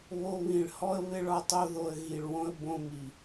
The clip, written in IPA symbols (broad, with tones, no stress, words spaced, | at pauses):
βo˧βĩ˨ɭhɔ˦ə̯ βɪ˦ɭɒ˦tˤo˦ðo˧ə̯ ɣi˨ɭwõ˧ə̯ bõ˧mi˨